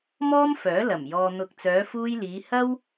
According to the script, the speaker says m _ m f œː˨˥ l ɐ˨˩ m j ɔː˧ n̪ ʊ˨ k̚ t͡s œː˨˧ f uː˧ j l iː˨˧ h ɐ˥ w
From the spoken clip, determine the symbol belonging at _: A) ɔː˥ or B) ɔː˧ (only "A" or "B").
A